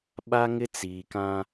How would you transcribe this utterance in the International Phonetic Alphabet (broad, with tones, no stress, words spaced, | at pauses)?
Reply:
ɓa˦ŋɪ˦t͡siː˨kã˦